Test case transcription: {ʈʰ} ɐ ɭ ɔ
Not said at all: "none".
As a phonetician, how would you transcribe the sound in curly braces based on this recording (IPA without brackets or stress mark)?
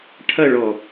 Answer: ʈʰ